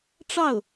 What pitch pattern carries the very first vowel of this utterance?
falling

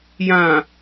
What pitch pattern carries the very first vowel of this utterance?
low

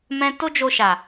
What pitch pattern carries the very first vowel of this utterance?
high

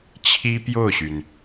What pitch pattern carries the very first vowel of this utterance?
high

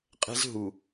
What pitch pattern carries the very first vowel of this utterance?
high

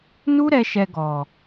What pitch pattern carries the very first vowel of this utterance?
high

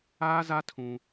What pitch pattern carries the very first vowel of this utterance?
high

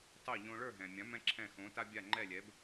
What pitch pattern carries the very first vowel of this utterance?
falling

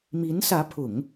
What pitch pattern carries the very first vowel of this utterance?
rising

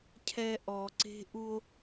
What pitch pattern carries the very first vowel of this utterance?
low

